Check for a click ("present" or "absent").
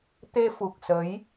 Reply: absent